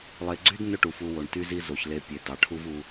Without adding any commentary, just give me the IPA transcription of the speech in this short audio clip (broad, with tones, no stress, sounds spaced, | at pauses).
lˠ e˨ ɡ͡ǀ y˥ d n ɵ˦ ʈ u˩ f u˨ w o˩ ɳ t y˦ z i˦ z o˩ ç l e˨ pʲ e˩ d ɑ˩ ʈʰ u˦ v u˨